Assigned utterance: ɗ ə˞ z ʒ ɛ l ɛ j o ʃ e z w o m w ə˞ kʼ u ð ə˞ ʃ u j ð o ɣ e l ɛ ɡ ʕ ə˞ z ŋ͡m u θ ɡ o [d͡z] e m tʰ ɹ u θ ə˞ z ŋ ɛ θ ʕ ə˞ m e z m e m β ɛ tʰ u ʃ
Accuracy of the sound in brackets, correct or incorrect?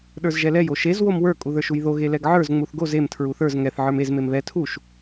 incorrect